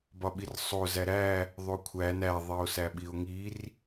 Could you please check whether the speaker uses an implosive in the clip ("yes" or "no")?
yes